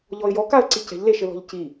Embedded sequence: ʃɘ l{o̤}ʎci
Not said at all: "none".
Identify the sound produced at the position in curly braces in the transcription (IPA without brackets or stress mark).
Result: ɔ̤